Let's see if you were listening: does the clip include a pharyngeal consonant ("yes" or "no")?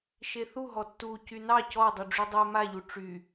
no